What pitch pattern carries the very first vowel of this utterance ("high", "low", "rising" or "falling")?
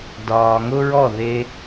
low